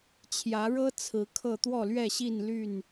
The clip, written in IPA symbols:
t͡ɕʰjä˨˦ɻɤ˦ t͡sʰɹ̩˨˦kʰɤ˥˨ t̪wɔ˥˨lɥɛ˥˨ɕi˥˨n ly˥˨n

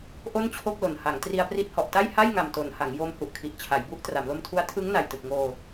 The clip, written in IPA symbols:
ʔo˥˩nt͡ɕʰo˥˩k̚lo˨˩nha˩˦ŋ tri˧a̯pri˦˥t̚hɔ˨˩ʔta˥˩j ha˥˩jŋa˨˩mto˩˦nha˩˦ŋ jo˧m hu˨˩ʔkʰi˨˩ʔ t͡ɕʰa˩˦jbu˦˥ʔ tra˩˦mlo˧mtʰu˦˥a̯ tʰɯ˦˥ŋna˨˩jtɯ˨˩k̚ŋoː˧

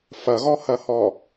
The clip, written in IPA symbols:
fɐɣɔhɐhɔ

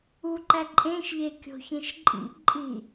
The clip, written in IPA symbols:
uǃæ ǃʼẽʃʎekʲo̤çẽʃ ǃʼḭ ǃʼi

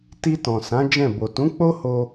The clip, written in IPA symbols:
ti˧ tɔ̃˨sã˨˦ d͡ʒɛ̃˦˨ bo˨tũ˨˦ k͡po˦ho˧

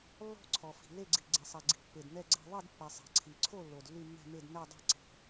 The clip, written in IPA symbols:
lːɔ̤˥˨ ǀʰɔ˩fi̤˩le˥˨ɡ͡ǀi˩ ɡ͡ǀe˩sˤɛ˩ɡ͡ǀi̤˩ pːe˩dnɛ˥˨ɡ͡ǀɛ̤˥˨ ðˤi˥˨dpːɛ˩ sˤi̤˩ǀʰi˩ǀʰo˥˨ lːo˩dlːy˥˨mːɛ̤˥˨me˥˨d nɛ˥˨dˤɛ̤˥˨ ǀi̤˩

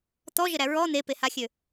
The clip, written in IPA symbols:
t̪ɔʒɘɾæ ɹɔ n̪epehaxʲø

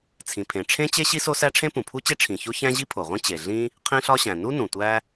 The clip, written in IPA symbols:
t͡sʰĩ˩pʰẽ˩ʈ͡ʂʰẽ˥t͡ɕe˥ ɕi˥so˥sæ˥ ʈ͡ʂʰẽ˥pũ˩pʰu˥t͡ɕe˥ ʈ͡ʂʰĩ˩ ço˥çæ̃˥ ʑi˥pʰo˩ʁʷẽ˥ t͡ɕe˩ ɮĩ˥ | qʰĩ˥ɬɒ˥ɕæ̃˩ nu˥ nũ˩tʷæ˥

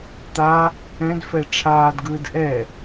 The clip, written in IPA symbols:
t̪a | ɛ̃dfɛ ʈ͡ʂʰaːdɡɯːd ʔɛ

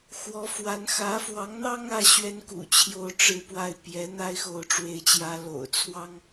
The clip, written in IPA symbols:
xwɔ˧˥fwa˧˥n xä˧˥fwɑ˧˥ŋn̪ɑ˥ŋ ä˥ɕɥɛ˥nkṵ˨˩ t͡ɕʰjo˥ʊ̯ʈ͡ʂɻ̩˥ pwa˥˩ɪ̯ pjɛ˧˥ n̪a˥ɪ̯xo˧˥ʊ̯ʈ͡ʂwe˧˥ɪ̯t͡ɕjä˧˥ lo̰˨˩ʊ̯ t͡sʰwɑ˥ŋ

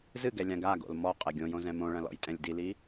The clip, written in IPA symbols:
zɨɡɛ lʲãɡaɡo̰l mɔ qʼɛɡʲõjõ zɛ̃mõɭɐ̃ lɔ̰jtʼɛ̃lʲdili

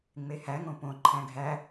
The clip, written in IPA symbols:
ŋ͡mehæŋõ põ ǃʰæ̃ɡʱæ

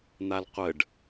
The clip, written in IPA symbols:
n̪alqʷəɖ

